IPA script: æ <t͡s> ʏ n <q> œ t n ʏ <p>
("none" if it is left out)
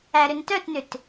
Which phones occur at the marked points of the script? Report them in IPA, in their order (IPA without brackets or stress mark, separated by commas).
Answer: ɾ, t, t